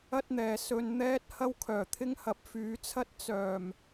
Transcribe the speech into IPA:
ɐ˥t̚n̪ɛː˨ sɵ˧n n̪ɛː˥t̚ hɐ˥wkʰœː˨˩t̪ʰɪ˥ŋhɐ˨˥p̚ fyː˨˧t͡sʰɐ˥t̚ t͡sœː˨˩m

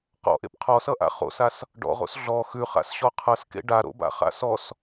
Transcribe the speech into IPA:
qɔ̰ʔḛp qʰɔsʌʔa̰ χo̰sas | ɖɔ̰ʁo̰s ɮɔ xʉχa̰sɕɔ qʰʌskḛ ɖaɾo̰ba̰χa̰ sɔs

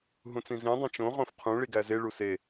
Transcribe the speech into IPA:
ɦũt͡sĩzĩ dˤẽt͡ʃõ ʁõfqʰũ ɭiɡæze ɭuse

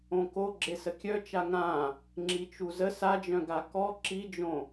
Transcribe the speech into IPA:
õko ɡ͡ǁesəkʲœt͡ʃa ŋã | ŋ͡ǁit͡ʃuzə sad͡ʒœ̃ɡa kɔ ǁid͡ʒõ

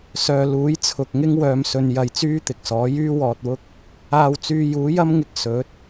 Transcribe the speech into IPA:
sœː˨luː˨˥jt͡sʰʊ˨k̚ŋɪ˥ŋ wœː˧msɵ˧n jɐ˧jt͡syː˥t̪ɪ˨k̚sɔː˨˥ jyː˥ wɔː˧t̚wʊ˥k̚ | aː˧w t͡syː˧juː˨˥jɐ˥mŋɪ˧k̚ sɵ˨˥t̚

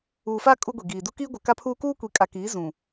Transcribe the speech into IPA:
uː˨faː˦ kʼu˦ɡʷi˨ɡiː˨ du˦kiː˦ɡʷɪ˨ ka˦pʰuː˦ kuː˦kʷi˨kʼa˨kiː˨˦ zũ˨

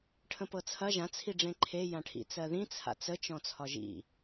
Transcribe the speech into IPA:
ʈʰə̃pɤt͡sʰɐ ʒãt͡sʰi ɖ͡ʐẽǃʰe jãʈʰḭ t͡sɜðĩ t͡sʰa̰t͡sə t͡ʃɔ̃t͡sʰɒʒḭ

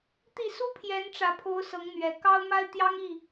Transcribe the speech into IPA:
t̪i˥˨ su˦ pʰjɛ˨˦nʈ͡ʂä˨˩pʰo˨˦ʊ̯ sɤ˨˦ŋn̪ɥɛ˨˩ kɑ˦ʊ̯ma˦ɪ̯ t̪jɑ˦ŋi˥˨

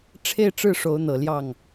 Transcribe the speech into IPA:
ʈ͡ʂʰe˥˧ɪ̯ʈ͡ʂɻ̩˥˩ ʂo˧˥ʊ̯n̪ɤ˨˩ ljɑ˥˩ŋ

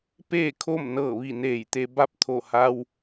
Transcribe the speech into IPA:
peː˥˨kʰo˥˨mnɤː˧˩ʋi˧˩ neː˧˩jt̪e˧ ba˥˨p̚t̪ʰo˧˩ha˧w

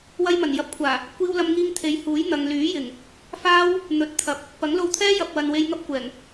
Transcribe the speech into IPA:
wɐ˧jmɐ˨˩njɐ˨p̚kʷʰaː˨˩ | kʷiː˥wlɐ˥mŋiː˥ŋ t̪ʰe˨˥jhuː˨˥jn̪ɐ˨ŋ lyː˨˥ jɪ˨˩ŋ | faː˥w | n̪ɵ˨˥t̚t̪ʰɐ˨p̚ | pɐ˨˥ŋlo˧wt̪ʰɛː˥ jɐ˨p̚wɐ˨n we˧jŋɐ˥p̚kʷɛː˨˩ŋ

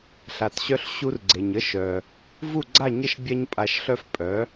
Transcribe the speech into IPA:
ɬa˩tɕœ˧ɬ ɕu˧r ɡ͡ǀe˩ɲə˧ ʃœ˩ | vu˥˩ɡ͡ǀa˥˩ɲə˥˩ʃ bʲa˥ɲpʼa˧ʃɬœ˥f pʼœ˩˥

